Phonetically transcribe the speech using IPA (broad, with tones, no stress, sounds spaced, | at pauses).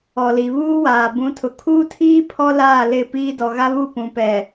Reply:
ɔ˨ l i˨ β uː˦ w aː˨ b ũ˨˦ tʰ ʊ˨ kʰ uː˦ tʰ iː˦ pʰ ɔ˦ l aː˦˨ l ɪ˦˨ p iː˦ d ɔ˨ ɣ a˦ β u˦˨ p ũ˨ p ɛ˨